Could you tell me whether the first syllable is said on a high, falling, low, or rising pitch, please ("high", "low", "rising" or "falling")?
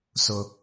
low